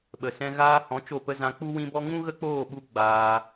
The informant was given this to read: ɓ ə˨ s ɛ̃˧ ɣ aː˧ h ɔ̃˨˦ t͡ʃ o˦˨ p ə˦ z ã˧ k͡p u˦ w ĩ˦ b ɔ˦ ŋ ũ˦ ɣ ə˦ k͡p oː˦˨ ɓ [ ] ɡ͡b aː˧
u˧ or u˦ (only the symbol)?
u˦